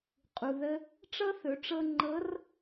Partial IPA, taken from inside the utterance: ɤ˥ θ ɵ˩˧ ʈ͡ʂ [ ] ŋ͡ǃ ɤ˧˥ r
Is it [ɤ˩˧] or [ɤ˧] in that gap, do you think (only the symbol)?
ɤ˧